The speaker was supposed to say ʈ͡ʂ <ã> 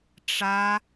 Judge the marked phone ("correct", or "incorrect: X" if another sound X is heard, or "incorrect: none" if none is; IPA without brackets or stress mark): incorrect: a